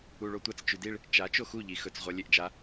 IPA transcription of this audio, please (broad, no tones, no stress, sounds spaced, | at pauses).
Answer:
u ɭ o tʷ a t͡s t͡ʃ ʉ d i ɭ | t͡ʃ a t͡ʃ o x u ʎ i x ɵ t͡s ʁʷ ɐ lʲ e ʔ d͡ʒ a